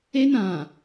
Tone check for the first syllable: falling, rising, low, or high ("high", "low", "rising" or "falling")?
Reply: high